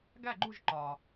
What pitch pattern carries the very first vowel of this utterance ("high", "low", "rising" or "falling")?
falling